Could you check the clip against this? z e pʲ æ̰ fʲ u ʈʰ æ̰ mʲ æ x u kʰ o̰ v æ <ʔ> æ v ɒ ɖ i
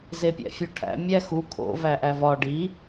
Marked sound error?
no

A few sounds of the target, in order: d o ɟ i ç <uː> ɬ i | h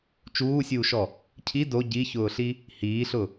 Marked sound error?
yes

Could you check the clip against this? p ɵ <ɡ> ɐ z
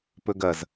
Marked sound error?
no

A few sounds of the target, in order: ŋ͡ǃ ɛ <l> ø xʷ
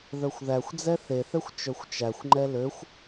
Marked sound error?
no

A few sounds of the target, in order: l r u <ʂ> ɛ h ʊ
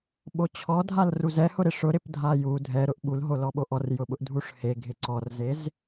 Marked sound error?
yes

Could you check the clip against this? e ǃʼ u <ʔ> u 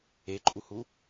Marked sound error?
yes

